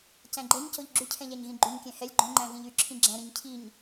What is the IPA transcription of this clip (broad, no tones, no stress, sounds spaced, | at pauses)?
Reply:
c æ̃ ɡ͡ǃ ɛ ɲ c o ʎ ɡ͡ǁ ʉ cʰ ɛ̃ ʎ æ ɲ ɣ ĩ ɡ͡ǃ y ɲ kʲ æ̃ h ɛ lʲ ɡ͡ǃ õ ŋ͡ǃ æ̃ v ĩ ʎ y ǁʰ ĩ ɡ͡ǁ æ̃ ɾ ĩ ɲ cʰ i ɲ